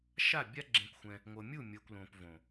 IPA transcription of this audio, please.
ʃ a˦˨ bʲ a˦ ɡ͡ǁ ẽ˧ kʷ xʷ ɛ̃˧ | ŋʷ ɤ˨ mʲ u˦˨ mʲ ɤ˨ kʷ l õ˨ p v õ˨

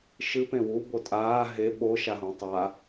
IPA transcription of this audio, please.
ʃ ɨ p ẽ w u b o tʼ aː ɦ e ɓ o ʃ a ɦ ũ tˤ a

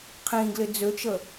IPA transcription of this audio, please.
qʰ ĩ ɡ l ɪ d͡z ø t͡ʃ ə

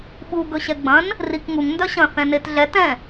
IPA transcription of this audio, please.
ɓ u ɡ ɵ ɕ ɛ ɡ͡b ɐ̃ n | r i k ŋ u ŋ n d œ ɕ ɐ̃ θ ɛ̃ n e t ɮ ɛ t ɛ̃

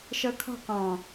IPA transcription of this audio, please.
ʃ ɤ kʰ ɔ̤ q ɔ̃

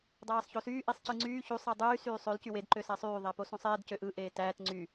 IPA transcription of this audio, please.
dˤ æː sˤ ç o s yː ʔ i sˤ c ɯ ŋ͡ǀ yː ç u sˤ æ dˤ yː s yː sˤ ø l c y w e d ǃ ø s æ sˤ yː ðˤ æ p o s ũ sˤ eː d c ø ʔ ɯ ʔ eː t æː t ŋ͡ǀ y

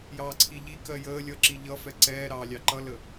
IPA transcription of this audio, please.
j ɑː ǀʰ i ʎ i k ɜ j əː lʲ ʌ ǁ i ʎ ʌ f ɛ ǀ ɛː ɾ ɑː lʲ ɑ ǃ ʌ l ə

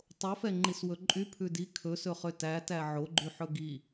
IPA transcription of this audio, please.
tˤ o f ɛ ŋ͡ǃ i s w ɵ ǃʼ y pʰ ʉ d i kʰ ɵ s ɵ χ ø t æ t æ ʕ o ɡ͡ǃ y ħ ɵ ɡ i

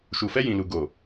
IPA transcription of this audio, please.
ʃ u˨ f ɛ˧ j ĩ˨ l u˨ ɡ o˨

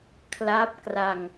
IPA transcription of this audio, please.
kʰ l a˦˥ p̚ k r a˧ ŋ

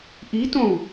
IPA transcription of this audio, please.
ʔ i t õ u̯

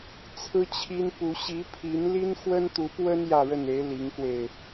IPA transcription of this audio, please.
t͡sʰ ɹ̩˥ t͡ɕʰ i˥ n p u˧˥ ɕ i˧˥ pʰ i˧˥ n l i˥ n x w ə˥ n t̪ u˧˥ p w ə˥ n j ä˥˧ ɻ ə˥˩ n e˧˥ ɪ̯ l i˧˥ ŋ k w e˧ ɪ̯

